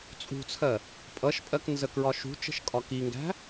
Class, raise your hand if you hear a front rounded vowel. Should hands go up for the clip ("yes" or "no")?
no